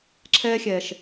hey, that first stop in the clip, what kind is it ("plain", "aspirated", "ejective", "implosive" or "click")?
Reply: click